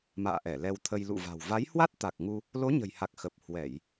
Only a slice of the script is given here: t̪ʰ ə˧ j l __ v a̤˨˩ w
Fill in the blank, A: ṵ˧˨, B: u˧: A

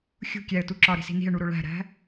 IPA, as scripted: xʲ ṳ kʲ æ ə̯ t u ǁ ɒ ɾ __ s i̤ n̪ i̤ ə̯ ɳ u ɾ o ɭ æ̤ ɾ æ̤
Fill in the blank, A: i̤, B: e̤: A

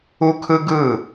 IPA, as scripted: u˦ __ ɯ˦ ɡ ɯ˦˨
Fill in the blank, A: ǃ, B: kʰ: B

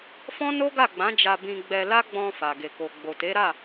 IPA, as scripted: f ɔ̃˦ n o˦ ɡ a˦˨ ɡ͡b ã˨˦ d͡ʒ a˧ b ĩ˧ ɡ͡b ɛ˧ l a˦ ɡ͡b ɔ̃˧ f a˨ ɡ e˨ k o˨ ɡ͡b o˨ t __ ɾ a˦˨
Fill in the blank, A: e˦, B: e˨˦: B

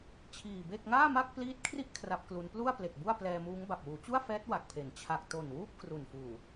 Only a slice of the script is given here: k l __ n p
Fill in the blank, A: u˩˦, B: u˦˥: B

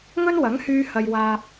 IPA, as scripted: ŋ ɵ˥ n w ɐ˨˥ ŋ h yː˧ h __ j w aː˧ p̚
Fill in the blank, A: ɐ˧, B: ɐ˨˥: A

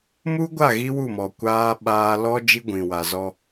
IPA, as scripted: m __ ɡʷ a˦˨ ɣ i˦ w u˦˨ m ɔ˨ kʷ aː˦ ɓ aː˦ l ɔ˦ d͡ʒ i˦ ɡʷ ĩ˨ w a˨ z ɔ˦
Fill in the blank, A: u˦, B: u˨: A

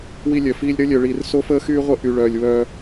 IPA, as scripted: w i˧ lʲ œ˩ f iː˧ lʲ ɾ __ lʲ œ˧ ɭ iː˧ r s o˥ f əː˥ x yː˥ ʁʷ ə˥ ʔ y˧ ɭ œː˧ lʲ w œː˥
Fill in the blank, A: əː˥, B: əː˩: A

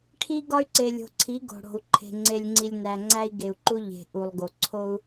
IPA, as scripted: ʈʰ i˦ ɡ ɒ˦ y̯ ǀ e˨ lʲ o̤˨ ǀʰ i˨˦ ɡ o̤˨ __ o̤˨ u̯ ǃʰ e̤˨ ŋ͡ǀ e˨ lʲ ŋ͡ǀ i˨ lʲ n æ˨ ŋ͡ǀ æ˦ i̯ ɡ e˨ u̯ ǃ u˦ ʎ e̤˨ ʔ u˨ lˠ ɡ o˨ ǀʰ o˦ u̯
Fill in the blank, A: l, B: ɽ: B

